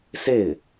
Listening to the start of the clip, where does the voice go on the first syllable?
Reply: falling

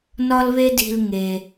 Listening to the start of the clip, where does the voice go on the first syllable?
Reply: high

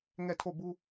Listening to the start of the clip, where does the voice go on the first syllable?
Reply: falling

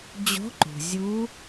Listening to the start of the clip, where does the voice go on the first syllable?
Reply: rising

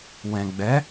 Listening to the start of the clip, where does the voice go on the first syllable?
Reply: low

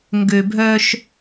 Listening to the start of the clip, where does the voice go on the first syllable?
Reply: low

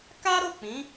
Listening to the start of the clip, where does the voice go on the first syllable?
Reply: high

